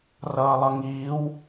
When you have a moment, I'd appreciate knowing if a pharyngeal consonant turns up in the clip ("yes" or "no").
no